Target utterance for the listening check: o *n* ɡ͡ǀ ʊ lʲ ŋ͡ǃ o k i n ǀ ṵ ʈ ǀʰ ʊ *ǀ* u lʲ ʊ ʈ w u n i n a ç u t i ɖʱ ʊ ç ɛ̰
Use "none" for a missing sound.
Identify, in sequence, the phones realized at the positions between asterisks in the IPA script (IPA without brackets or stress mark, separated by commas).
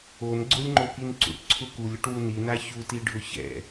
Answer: n, k